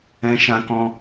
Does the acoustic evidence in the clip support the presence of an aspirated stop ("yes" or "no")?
no